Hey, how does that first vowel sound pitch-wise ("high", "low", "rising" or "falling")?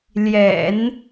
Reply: low